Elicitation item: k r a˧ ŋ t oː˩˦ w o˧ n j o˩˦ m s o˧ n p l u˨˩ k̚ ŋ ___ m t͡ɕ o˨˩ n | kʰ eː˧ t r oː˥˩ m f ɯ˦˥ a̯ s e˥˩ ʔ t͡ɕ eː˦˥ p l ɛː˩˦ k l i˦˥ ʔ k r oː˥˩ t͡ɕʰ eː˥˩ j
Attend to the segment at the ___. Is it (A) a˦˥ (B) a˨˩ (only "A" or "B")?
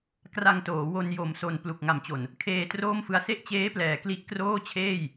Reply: B